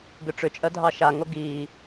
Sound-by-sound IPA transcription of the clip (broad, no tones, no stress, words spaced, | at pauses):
ɡʏʈ͡ʂʏt͡ʃʼɜ dʱɑʃaŋo ɡiː